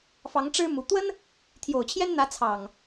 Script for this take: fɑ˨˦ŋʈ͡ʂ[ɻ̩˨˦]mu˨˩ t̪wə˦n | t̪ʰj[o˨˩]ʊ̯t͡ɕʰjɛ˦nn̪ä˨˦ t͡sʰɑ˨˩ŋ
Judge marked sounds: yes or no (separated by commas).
no, yes